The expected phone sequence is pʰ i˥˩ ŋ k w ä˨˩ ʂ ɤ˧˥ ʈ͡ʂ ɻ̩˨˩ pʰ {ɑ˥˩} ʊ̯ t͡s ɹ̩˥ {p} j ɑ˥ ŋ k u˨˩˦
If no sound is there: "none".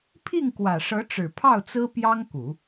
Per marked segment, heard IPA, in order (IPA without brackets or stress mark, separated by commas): ɑ˥˩, p